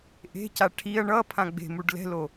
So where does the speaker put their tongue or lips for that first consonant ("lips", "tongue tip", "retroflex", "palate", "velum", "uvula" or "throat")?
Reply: throat